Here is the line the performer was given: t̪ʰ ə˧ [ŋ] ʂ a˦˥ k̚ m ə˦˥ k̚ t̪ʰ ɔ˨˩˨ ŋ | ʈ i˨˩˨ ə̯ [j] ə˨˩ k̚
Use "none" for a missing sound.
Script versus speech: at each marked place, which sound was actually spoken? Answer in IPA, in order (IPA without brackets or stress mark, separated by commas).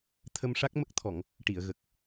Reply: m, ɣ